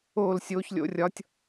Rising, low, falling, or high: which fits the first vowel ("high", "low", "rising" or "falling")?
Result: falling